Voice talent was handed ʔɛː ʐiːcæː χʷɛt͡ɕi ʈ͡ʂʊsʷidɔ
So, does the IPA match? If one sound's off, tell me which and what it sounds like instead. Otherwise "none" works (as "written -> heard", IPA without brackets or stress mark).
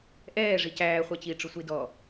iː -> i